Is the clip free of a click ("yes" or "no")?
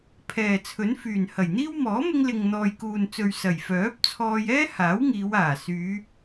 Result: yes